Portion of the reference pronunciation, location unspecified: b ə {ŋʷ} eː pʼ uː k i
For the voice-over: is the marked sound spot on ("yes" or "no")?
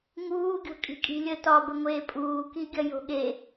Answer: yes